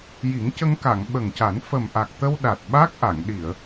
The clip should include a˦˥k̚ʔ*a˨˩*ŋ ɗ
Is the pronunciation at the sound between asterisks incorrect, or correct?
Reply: incorrect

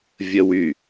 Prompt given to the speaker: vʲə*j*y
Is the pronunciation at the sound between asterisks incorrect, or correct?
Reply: incorrect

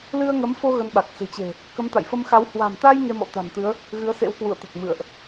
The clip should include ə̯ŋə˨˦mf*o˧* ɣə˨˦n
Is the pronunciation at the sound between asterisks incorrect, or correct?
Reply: correct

